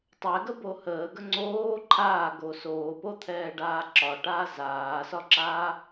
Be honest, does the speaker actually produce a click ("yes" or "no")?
yes